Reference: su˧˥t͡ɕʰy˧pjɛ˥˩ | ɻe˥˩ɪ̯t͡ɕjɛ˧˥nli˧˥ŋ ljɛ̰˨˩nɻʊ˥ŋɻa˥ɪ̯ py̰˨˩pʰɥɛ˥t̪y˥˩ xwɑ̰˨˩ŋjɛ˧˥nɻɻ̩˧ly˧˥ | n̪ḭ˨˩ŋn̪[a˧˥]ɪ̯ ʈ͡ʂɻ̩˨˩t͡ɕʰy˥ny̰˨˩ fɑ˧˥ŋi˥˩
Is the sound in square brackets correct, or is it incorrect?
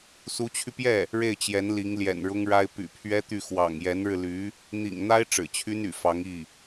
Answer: incorrect